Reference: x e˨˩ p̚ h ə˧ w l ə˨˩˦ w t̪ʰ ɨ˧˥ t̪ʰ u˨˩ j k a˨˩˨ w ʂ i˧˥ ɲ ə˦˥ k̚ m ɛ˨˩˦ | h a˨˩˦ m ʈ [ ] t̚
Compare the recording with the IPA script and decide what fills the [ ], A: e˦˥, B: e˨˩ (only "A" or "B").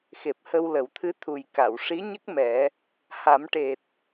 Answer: B